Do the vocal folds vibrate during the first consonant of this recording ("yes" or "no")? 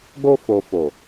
yes